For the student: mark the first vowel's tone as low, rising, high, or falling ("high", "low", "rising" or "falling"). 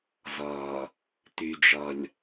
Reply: low